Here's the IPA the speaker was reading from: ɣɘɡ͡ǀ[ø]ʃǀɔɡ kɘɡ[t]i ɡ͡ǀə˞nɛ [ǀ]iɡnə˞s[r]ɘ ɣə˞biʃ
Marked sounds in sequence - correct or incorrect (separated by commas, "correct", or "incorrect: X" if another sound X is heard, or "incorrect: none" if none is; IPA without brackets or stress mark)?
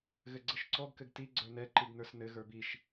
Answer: incorrect: ɘ, correct, incorrect: ǃ, incorrect: n